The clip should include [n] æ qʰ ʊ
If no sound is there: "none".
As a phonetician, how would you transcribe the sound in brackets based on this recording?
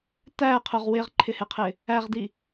t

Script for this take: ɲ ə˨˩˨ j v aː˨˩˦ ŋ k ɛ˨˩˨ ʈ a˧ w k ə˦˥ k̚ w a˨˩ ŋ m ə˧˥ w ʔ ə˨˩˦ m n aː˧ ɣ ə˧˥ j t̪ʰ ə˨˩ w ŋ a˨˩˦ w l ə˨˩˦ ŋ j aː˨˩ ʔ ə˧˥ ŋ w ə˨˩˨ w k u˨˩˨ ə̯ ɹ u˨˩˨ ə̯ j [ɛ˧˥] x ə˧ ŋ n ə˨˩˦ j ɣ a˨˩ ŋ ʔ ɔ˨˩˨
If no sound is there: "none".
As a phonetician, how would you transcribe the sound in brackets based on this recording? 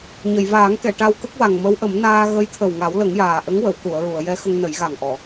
ɛ˧˥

